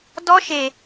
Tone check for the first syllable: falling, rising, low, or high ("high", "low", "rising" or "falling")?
high